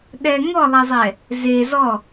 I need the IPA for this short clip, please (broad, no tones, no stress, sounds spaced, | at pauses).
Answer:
ɗ ɛ ŋ ɔ lˠ ɛ zˤ ɛ | z e z ɔ